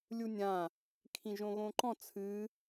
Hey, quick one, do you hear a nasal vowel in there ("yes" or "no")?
yes